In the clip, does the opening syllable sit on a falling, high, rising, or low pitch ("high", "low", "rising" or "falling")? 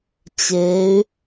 rising